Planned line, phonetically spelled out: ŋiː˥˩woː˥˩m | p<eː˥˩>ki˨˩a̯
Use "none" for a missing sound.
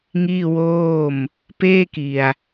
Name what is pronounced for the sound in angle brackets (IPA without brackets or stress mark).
eː˥˩